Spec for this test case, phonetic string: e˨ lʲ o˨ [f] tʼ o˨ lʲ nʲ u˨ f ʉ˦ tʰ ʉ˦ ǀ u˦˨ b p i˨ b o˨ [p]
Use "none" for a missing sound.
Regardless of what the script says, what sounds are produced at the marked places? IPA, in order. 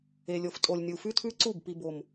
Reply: f, m

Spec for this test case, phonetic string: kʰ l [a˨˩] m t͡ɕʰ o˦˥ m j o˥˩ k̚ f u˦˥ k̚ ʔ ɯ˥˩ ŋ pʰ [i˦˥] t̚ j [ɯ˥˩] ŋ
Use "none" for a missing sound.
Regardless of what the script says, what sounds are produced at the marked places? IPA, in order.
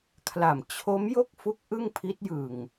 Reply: a˨˩, i˦˥, ɯ˨˩

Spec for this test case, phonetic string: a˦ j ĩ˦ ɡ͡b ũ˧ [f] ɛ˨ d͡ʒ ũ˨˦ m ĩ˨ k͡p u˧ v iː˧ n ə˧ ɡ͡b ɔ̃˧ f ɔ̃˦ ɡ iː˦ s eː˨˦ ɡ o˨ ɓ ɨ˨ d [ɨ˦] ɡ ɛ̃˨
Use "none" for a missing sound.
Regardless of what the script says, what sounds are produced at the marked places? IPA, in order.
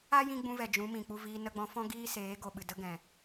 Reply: v, ə˦

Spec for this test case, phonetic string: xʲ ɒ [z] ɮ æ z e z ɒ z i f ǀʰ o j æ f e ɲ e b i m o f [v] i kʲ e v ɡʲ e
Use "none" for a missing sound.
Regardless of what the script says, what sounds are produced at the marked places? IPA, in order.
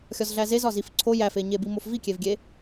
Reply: z, v

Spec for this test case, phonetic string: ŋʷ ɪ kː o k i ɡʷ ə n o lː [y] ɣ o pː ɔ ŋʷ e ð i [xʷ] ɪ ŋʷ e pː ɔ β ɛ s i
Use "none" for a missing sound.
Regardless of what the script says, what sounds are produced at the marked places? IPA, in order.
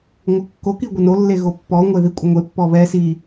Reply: e, kʷʼ

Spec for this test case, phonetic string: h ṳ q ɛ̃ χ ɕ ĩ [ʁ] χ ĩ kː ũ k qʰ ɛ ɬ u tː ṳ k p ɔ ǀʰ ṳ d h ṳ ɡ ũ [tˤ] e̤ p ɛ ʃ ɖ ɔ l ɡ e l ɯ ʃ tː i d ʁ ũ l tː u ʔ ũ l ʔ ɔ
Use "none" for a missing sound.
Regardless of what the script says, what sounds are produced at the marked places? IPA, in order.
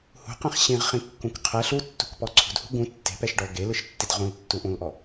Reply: ʁ, tː

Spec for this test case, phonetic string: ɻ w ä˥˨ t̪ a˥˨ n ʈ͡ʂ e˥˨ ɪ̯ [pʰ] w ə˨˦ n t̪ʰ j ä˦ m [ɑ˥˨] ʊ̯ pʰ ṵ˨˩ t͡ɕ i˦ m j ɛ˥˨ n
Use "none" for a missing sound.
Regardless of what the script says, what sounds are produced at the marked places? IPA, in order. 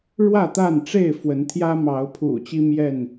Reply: f, ɑ˨˦

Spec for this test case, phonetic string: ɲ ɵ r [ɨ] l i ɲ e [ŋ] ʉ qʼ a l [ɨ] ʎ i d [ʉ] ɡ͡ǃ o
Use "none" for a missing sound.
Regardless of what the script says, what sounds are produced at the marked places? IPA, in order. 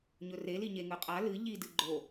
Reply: e, ŋ, ɨ, ɨ

